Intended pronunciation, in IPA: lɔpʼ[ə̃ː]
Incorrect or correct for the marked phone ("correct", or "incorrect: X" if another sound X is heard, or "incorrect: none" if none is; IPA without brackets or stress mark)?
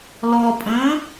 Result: correct